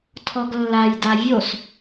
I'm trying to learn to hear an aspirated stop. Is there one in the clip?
yes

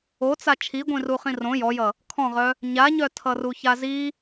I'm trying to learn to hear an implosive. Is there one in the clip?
no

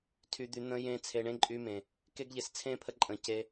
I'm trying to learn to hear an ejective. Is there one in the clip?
yes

